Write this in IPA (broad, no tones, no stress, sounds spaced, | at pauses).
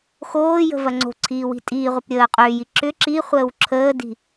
x oː j ə̤ v ɐ ŋ͡ǀ o̤ ǀʰ iː w i̤ tʼ iː ʁʷ ɐ p ɾʲ əː qʼ ʏː j i ǁ ʏ ǁ i χʷ əː w ǁʰ əː d i̤